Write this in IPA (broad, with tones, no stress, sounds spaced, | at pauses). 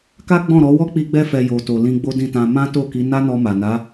k a˦ ɡ͡b ɔ̃˦˨ ɾ ɔ˨˦ w ɔ˦ k͡p i˧ ɡ͡b ɛ˧ f ɛ˨ j o˨ t o˨ l ĩ˧ ɡ͡b o˦ d ĩ˦˨ t ã˧ m ã˦ t o˦˨ k i˨˦ n a˦ n ɔ˧ m a˨ n a˨˦